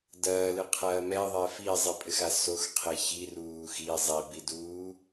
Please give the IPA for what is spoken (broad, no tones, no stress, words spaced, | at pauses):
dɐːlɨqʰɐː mɛðˤɛ fizˤipʼɘxa soxqʰe çiruː xi zˤibiduː